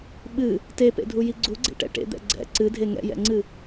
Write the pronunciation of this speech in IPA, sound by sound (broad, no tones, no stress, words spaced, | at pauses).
ɓɨ | tepḛdʱuji ɡ͡ǀuɡ͡ǀḛʈɛ̰ ʈḛd̪ɛ̰ ɡ͡ǀɛ̰ ǀɨdʱe ŋɛ̰jɛ̰ŋ͡ǀɨ